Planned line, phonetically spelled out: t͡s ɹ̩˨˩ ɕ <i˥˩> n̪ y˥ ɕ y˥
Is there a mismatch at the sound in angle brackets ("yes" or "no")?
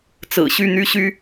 yes